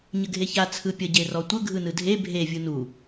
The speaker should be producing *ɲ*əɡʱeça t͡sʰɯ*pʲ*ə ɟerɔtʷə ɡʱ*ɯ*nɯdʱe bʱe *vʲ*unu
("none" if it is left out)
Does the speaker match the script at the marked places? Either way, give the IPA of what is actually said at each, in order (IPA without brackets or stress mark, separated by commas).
ɲ, pʲ, ɯ, vʲ